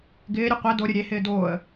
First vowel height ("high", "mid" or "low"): high